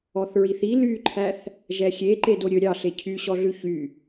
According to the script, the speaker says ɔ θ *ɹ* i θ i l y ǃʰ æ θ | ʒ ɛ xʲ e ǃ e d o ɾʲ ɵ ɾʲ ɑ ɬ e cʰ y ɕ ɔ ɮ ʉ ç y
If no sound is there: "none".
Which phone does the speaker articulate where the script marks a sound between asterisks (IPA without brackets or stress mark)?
ɹ